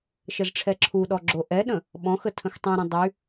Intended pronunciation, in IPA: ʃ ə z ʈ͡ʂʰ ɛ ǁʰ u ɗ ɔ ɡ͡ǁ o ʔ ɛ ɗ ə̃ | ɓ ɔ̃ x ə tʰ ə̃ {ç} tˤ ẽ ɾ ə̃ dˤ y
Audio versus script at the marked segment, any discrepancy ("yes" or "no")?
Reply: yes